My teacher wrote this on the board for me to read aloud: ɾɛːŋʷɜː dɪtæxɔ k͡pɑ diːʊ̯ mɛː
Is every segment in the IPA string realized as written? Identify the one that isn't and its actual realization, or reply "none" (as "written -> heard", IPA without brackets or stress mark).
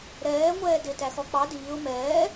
ɜː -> ɛː